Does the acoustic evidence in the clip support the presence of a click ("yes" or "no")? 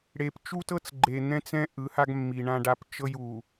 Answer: yes